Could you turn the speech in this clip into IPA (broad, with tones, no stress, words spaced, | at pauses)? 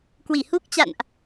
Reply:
kwi˧˩hu˦˥k̚t͡ɕa̰˧˨nʔ